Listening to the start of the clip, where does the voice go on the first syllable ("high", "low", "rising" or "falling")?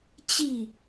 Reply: falling